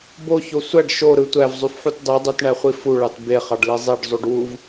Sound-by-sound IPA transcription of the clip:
b o ç o sʷ æ ɖ ʃ o ɾ ɯ tʷ æ v zˤ y f ħ u t dˤ y dˤ u t ɳ æ χʷ i f u ɭ ɑ t b e χ ɑ ɖ l i zˤ i ɖ zˤ u ɖ w u v

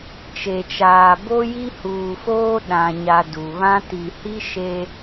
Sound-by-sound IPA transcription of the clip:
t͡ʃ e˨ t͡ʃ aː˨ b o˦ j i˦ h uː˨ f oː˦ ɗ ã˨ ɲ a˨ d u˨ β ã˦ t i˨ h i˦ ʃ e˦

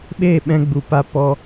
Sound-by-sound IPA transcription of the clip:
ɓ eː˦˨ ɓ ɛ̃˧ ɡ͡b u˨ p a˧ p ɔ˦

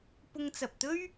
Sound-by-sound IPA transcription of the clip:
p ʊ˧ ŋ t͡s ɐ˨ p̚ t̪ ɵ˥ ɥ

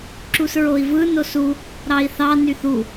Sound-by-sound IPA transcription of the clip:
ǁ u s ɹ o i̯ v ɯ n o s u | ɾ ɑ i̯ θ ɑ n y θ u

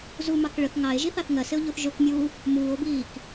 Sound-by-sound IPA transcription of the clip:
z u m ɑ k ɭ ə θ ŋ ɑ e̯ ʒ i θ ɑ θ ŋ ɜ s ɪ o̯ ʎ u θ ʒ ʊ k mʲ uː | m uː o̯ b iː k

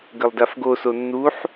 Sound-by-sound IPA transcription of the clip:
ɡ ə lˠ d a f ɡ o s o nː u ħ

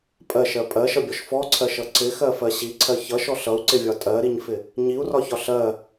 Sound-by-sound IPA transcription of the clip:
pʼ ɜ ʃ ɜ pʼ ɜ ʃ ʌ bʲ ɔ ʃ f ɔ ǀʰ ɜ ʃ ʌ ǀ ɪ x ɜ f ɜ ɕ i ǀʰ ɜ ç ʌ ʃ ɔ ɬ ʌ u̯ ǀ ɪ vʲ ɒ tʼ ɜ ɾ i ɲ f ɪ | ɲ i u̯ r ɒ ç ɒ ɬ ɜ

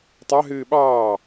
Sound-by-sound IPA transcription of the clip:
tˤ ɑ ɦ ɨː ɓ ɑː

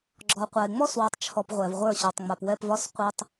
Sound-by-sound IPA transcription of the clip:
ɡ͡ǁ ɔ˨ qʷ a˨ e̯ ŋ͡m ɔ˦ s w ɔ˨ tˤ t͡ʃʰ ɔ˨ p ʁʷ ɛ˨ v ʁʷ ə˞˦˨ ɕ ɔ˨ tˤ ŋ͡m a˨ p w ɛ˦˨ p v ɒ˦ s qʷ ə˞˦ tˤ

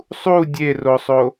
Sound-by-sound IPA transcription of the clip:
sˤ u dʲ e r o sˤ o

